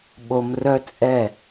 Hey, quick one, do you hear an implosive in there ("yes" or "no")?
yes